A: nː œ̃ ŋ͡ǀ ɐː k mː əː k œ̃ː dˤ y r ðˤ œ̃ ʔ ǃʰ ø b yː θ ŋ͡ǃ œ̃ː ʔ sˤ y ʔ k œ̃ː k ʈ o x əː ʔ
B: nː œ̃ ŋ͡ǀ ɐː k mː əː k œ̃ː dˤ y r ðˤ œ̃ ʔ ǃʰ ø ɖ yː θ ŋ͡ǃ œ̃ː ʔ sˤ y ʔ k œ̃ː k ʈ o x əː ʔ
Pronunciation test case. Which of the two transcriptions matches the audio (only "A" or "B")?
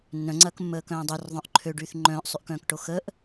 B